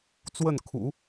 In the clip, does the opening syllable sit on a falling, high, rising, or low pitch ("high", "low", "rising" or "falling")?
falling